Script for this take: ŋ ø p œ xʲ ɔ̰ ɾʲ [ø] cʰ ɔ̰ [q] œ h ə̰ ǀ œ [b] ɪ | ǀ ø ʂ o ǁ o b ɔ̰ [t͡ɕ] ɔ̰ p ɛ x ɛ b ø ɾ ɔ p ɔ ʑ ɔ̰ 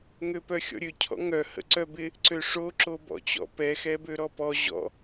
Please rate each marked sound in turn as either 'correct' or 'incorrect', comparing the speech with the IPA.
correct, incorrect, correct, correct

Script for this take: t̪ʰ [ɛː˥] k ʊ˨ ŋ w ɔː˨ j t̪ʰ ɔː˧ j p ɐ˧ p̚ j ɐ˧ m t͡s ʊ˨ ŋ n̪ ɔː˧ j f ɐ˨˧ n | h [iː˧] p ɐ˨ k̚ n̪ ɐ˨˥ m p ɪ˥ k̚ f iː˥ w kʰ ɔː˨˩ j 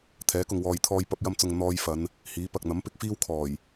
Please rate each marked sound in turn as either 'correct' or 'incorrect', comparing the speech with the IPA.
incorrect, incorrect

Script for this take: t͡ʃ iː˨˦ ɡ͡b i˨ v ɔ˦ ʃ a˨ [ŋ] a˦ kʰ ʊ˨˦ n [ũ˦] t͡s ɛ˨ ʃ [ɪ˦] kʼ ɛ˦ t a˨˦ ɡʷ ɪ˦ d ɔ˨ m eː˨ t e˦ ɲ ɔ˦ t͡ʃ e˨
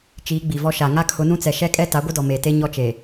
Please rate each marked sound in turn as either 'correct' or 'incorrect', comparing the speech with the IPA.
correct, correct, incorrect

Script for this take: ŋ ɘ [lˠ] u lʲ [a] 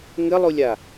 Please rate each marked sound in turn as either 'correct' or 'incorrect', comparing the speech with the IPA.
correct, correct

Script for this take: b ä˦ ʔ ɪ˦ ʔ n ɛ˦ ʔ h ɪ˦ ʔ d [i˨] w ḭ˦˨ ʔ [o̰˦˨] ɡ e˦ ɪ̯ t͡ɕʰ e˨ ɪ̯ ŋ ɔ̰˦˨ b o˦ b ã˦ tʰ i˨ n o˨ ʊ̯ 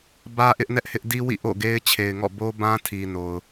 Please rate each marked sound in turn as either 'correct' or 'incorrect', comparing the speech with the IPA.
incorrect, correct

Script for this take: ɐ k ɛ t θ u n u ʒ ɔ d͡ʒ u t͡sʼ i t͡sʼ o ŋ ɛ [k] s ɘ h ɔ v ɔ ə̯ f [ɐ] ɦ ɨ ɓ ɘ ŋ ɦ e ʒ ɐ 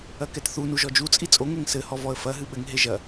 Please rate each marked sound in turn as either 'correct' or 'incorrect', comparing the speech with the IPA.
incorrect, correct

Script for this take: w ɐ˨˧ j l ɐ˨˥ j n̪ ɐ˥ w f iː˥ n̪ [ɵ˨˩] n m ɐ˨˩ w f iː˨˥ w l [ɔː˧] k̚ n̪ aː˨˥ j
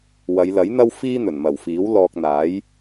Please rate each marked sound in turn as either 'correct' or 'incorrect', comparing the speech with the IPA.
correct, correct

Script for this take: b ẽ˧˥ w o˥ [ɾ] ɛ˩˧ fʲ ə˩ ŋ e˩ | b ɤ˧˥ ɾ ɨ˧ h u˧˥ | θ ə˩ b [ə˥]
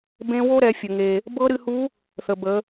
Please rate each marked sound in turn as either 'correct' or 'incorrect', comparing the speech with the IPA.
correct, incorrect

